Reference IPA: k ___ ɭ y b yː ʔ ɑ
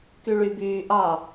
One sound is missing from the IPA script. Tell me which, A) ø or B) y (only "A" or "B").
B